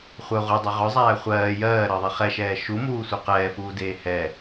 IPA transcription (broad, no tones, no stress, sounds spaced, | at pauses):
χʷ œ ʁʷ œ dˤ œ ʁ œ zˤ æː χʷ ɜː j ɜː ɾ ɜ ðˤ i χ ɛ ʃ ɛː ʃ u m uː sʷ œ q ɛː f uː d eː h ɛ